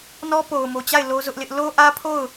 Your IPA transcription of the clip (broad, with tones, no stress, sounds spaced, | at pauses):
n ɔ˦ p o˨ ʊ̯ m o˨ t͡ɕ a˦˨ ɪ̯ l o˦ z ʊ˦ ʔ l ɪ˦ ʔ l o˦ ʔ ä˦ pʰ o˦˨ ʊ̯